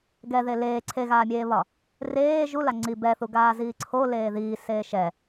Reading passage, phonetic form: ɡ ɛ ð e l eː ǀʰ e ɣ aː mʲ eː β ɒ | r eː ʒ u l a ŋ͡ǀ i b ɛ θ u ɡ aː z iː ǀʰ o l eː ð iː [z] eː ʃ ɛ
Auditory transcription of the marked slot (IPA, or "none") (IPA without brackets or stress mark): s